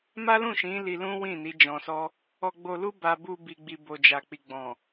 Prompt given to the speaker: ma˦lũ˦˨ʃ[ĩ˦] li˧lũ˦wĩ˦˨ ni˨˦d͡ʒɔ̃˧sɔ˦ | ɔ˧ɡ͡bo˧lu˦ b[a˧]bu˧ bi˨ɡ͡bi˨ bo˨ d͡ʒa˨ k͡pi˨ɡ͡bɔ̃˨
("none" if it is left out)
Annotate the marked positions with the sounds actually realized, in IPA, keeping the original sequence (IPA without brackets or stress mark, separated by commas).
ĩ˨˦, a˧